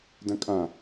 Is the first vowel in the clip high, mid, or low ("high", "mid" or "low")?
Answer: low